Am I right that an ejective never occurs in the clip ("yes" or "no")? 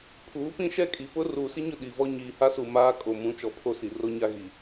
no